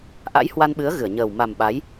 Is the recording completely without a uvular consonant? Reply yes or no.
yes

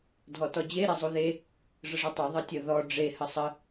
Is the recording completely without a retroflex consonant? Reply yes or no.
no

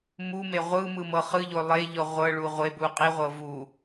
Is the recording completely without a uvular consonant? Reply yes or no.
no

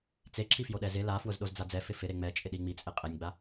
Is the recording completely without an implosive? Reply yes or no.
no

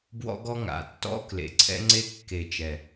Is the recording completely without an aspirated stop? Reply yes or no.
no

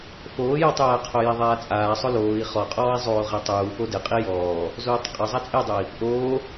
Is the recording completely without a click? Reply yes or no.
yes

